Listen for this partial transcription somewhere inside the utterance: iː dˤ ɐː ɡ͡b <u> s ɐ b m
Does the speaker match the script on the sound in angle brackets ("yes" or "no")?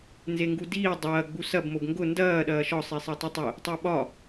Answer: yes